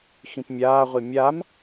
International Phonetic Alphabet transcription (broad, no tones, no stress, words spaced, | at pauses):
xĩpmʲaːʁʷi mʲam